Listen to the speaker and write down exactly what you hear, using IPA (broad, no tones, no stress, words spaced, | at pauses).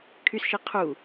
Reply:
kʰysʃi qʰu